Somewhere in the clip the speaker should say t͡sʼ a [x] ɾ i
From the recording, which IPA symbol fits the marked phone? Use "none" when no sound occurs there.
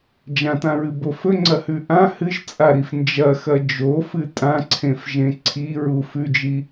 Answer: none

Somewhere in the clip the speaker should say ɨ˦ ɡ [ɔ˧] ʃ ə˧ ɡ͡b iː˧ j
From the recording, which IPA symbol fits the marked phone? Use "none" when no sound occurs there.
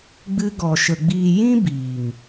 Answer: ɔ˧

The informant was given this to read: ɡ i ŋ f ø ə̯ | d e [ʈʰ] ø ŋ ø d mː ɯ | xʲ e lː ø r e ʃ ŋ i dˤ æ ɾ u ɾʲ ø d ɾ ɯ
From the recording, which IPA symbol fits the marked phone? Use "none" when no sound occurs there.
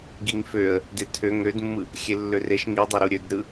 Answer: tʰ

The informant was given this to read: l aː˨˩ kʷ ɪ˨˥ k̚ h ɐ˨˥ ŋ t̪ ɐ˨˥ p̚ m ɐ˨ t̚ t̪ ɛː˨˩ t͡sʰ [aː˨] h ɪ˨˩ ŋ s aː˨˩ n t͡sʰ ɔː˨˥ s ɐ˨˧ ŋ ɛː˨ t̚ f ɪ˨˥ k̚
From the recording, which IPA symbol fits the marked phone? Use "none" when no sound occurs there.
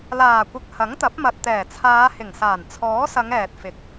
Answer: aː˨˧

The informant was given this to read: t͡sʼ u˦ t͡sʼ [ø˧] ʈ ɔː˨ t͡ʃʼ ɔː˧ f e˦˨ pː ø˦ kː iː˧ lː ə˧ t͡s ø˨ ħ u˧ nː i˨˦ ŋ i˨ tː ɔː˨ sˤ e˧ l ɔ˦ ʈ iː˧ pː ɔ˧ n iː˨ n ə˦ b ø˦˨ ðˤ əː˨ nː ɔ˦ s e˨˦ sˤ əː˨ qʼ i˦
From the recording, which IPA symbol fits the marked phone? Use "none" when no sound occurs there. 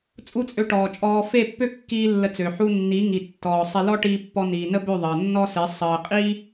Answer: ø˧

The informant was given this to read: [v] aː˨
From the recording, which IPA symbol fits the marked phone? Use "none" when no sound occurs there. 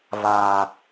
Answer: v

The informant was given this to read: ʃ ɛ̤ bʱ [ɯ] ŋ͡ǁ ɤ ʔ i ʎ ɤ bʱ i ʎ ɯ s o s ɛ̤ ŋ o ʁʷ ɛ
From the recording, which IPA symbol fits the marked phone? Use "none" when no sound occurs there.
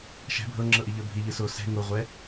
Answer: ɤ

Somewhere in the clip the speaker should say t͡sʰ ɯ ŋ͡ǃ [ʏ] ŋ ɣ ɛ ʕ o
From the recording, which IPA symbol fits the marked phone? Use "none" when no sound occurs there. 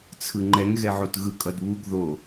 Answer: ɛ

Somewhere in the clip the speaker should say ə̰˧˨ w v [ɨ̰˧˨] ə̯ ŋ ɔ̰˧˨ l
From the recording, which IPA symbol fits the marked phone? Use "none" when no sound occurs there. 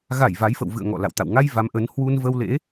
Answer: ɨ̰˧˨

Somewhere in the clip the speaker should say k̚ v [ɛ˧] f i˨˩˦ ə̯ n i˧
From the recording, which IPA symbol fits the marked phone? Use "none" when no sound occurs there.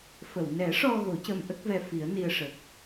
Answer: ɛ˧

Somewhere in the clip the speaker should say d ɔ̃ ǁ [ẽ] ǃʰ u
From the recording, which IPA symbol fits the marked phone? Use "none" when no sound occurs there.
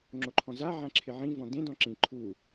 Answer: ĩ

